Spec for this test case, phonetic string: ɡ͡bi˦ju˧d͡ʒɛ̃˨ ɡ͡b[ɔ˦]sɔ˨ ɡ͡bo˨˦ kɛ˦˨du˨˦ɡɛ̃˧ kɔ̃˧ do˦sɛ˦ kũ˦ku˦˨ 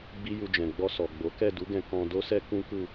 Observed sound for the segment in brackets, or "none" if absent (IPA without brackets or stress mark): ɔ˧